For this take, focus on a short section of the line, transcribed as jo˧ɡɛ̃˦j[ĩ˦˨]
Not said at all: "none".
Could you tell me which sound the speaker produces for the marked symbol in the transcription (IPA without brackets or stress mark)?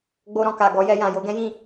ĩ˦˨